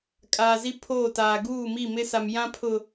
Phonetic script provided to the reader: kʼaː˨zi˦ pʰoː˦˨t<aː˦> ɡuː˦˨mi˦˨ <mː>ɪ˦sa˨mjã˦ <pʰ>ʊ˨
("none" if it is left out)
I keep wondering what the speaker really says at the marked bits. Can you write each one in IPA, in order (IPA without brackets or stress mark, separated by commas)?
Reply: aː˨, m, pʰ